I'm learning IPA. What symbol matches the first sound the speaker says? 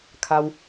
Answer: kʰ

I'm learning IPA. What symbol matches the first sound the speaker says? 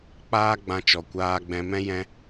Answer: k͡p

